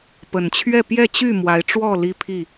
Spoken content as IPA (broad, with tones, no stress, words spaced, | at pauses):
pə˨˩nt͡ɕʰɥɛ˥˨ pjɛ˥˨t͡ɕy˥˨ mwa˨˦ɪ̯ ʈ͡ʂwɔ˥˨ li˦pʰi˥˨